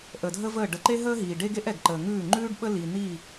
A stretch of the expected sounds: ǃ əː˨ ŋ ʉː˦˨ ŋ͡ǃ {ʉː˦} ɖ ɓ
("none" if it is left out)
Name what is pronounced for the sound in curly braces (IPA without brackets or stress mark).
ʉː˦